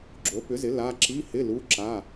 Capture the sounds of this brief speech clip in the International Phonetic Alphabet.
ɡ͡ǁ o˨˥ p ʏ˨˥ z ɪ˨˥ l a˧˥˧ ǁ i˧˥˧ h ɪ˧˥˧ l u˧˥˧ ǁ a˧˥˧

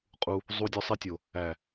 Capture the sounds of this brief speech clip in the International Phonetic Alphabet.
qʼ u˧ | zˤ u˧ dʲ ɔ˧ sˤ i˧ tʲ o˨ | æ˨

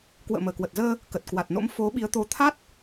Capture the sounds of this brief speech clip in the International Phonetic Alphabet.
k w ə̰ː˧˨ m əː˧˩ k w ə˨˩ t̚ z əː˧ | k ə˨˩ t̚ k w a˨˩ t̚ n o̰˧˥ m f o˨˦ ɓ i˨˦ ə̯ t̪ o˨˦ t̪ʰ a˦˥ t̚

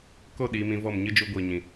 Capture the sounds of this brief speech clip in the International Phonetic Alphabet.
k o˦˨ ɗ iː˨˦ m ĩ˧ v ɔ˦˨ m ɲ ɨ˦ d͡ʒ u˧ ɡʷ iː˨ ɲ ĩ˨

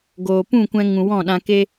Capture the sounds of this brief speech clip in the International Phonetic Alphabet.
ɡ oː˨ p ũ˦˨ kʷ ɛ̃˧ ŋ ũ˨ w ɔ̃˦˨ ɗ ã˧ k e˦

